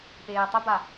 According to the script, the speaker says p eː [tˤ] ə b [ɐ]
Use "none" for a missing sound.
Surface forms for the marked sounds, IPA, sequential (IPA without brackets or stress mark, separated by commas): tˤ, a